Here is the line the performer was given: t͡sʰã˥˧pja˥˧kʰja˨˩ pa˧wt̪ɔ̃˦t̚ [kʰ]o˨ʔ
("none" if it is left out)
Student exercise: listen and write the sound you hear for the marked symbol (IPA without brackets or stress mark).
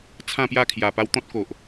k